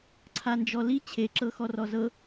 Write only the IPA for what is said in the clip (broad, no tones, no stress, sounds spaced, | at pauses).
ǀʰ a n d͡ʒ ɔ l i t͡ɕʰ e ǁ ɤ x ɔ r ɔ z ɤ